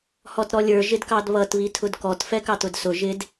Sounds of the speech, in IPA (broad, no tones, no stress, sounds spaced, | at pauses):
h ɔ t ɾ ɔ lʲ ə˞ ʒ ɪ d k ɑ d β ʌ t β i tʰ ʊ d k ɔ t f ɛ k ɑ t ʊ d s ʊ ʒ ɪ d